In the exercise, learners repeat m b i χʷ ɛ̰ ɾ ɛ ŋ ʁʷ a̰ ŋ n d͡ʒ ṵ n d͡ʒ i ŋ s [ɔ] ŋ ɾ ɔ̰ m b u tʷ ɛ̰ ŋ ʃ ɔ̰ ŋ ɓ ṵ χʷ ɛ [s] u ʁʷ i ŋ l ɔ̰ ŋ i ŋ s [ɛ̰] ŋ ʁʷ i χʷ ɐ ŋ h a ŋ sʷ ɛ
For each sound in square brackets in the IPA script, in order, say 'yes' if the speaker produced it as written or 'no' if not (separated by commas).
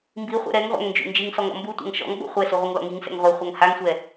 yes, yes, yes